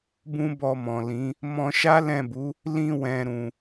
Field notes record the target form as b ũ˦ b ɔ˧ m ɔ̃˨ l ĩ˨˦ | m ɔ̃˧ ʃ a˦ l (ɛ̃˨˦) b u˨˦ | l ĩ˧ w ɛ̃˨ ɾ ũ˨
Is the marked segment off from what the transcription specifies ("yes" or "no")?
yes